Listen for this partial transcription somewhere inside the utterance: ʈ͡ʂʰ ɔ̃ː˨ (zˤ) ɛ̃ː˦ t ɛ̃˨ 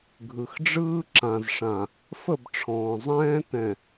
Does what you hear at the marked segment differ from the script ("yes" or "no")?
no